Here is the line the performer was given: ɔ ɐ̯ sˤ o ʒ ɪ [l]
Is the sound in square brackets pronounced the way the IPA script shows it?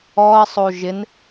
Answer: no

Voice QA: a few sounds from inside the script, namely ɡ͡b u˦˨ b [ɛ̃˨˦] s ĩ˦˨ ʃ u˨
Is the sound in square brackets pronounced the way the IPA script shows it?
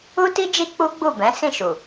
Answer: yes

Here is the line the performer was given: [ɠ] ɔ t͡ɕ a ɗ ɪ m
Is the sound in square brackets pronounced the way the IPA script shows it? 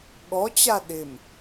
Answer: yes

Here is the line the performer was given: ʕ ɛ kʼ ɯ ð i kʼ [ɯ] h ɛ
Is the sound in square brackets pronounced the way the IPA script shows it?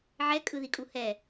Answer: no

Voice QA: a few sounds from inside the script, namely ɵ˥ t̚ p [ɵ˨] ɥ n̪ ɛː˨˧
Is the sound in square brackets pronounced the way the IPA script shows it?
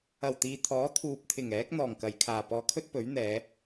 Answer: no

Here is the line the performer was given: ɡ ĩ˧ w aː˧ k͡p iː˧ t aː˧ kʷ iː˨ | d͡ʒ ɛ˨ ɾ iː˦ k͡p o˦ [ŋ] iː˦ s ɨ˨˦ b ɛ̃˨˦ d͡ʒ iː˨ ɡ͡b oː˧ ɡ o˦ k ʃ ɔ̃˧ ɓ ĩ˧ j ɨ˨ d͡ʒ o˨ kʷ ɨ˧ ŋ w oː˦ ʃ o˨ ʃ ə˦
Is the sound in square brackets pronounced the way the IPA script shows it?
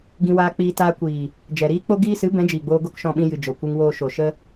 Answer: no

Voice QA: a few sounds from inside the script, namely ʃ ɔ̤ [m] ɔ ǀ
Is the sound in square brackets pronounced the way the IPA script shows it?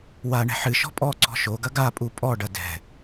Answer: no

